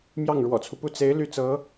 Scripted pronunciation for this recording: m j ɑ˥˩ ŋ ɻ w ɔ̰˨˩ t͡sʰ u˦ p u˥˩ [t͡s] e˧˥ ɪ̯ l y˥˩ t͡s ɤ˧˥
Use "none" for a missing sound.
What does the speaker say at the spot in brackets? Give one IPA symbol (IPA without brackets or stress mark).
t͡s